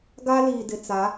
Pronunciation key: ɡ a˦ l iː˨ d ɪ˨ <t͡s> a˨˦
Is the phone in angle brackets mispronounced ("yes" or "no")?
no